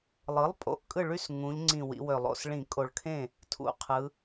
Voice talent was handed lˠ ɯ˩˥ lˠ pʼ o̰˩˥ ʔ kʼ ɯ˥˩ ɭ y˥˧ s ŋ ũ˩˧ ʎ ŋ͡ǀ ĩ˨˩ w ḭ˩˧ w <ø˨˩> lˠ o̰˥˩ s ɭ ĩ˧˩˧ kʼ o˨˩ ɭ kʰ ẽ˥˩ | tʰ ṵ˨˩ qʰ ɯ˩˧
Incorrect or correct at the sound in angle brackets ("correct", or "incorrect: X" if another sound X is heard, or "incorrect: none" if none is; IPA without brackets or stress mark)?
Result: correct